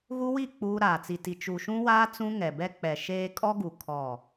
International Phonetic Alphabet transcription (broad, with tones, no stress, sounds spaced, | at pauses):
ɣ u˦ w i˦˨ k͡p uː˦ ɾ aː˨ t͡s i˨ t i˨ t͡ʃ u˨ ʃ ũ˦ w aː˦ t͡s ũ˦ ŋ ɛ˨ b ɛ˦ k͡p ɛ˨ ʃ eː˦ kʼ ɔ˦ ɡ u˨ kʰ ɔ˦˨